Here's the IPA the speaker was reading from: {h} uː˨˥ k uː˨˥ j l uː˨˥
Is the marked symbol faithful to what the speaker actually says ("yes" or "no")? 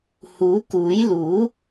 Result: yes